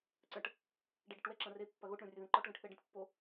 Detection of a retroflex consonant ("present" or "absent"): present